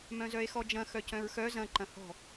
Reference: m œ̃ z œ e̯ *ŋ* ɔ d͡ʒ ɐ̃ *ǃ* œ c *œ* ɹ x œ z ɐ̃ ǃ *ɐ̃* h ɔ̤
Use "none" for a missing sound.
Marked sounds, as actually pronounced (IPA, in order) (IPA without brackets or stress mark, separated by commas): x, x, œ̃, ɐ̃